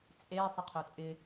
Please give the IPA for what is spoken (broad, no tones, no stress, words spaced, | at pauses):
t͡sʼe sˤɪqʰœt͡sʼɪ